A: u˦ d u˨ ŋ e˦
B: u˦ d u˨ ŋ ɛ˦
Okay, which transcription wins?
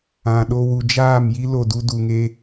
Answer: A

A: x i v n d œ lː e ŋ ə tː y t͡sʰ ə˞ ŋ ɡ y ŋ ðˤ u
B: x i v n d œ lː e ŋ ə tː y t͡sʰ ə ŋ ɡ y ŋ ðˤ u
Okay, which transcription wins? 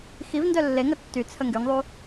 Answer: B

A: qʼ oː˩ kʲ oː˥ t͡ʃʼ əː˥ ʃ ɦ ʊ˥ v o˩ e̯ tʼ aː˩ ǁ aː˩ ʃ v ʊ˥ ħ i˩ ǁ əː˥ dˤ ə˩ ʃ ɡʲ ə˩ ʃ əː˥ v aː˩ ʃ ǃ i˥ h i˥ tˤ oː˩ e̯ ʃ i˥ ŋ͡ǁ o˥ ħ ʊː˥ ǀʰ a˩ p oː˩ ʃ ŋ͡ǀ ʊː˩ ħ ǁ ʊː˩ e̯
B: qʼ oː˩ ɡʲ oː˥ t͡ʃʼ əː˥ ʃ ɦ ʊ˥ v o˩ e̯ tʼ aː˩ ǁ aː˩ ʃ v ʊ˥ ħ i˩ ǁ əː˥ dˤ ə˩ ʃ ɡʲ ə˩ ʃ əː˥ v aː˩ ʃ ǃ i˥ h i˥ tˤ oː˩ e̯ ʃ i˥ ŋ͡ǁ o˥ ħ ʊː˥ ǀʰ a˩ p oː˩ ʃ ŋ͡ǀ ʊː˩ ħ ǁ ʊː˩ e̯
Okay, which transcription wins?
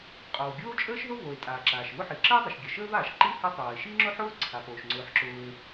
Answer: B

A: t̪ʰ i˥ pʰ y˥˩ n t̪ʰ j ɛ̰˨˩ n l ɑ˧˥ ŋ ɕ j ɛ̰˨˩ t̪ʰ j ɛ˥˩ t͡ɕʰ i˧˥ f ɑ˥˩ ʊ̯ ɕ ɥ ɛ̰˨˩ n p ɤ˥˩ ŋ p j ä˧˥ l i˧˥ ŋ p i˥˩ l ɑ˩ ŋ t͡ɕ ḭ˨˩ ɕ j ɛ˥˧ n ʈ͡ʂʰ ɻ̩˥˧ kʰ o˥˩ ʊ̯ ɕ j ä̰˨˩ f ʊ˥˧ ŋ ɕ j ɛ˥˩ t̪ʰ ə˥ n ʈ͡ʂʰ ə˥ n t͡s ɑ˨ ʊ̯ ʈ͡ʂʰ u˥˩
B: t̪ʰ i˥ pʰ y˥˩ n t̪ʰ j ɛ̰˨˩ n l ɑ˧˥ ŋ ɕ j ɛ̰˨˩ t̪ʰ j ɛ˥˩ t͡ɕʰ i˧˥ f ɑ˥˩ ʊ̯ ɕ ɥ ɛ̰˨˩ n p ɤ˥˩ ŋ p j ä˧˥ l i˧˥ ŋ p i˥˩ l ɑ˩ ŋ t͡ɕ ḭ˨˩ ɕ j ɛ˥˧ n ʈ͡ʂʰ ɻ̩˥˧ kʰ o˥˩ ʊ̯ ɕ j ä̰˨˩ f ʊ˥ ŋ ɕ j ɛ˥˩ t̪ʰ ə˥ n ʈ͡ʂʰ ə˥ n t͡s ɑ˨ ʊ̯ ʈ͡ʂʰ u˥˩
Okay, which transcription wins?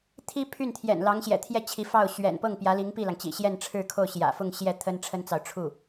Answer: A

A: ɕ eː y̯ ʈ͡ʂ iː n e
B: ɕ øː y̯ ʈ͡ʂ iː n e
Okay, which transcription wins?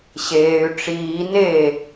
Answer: A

